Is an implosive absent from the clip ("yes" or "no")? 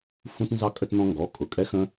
yes